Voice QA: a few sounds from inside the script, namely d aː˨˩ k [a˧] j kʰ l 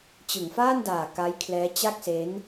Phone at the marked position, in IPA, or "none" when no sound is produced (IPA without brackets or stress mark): a˦˥